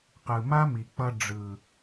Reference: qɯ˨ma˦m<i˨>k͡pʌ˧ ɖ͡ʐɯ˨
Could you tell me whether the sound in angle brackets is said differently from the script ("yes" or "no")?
no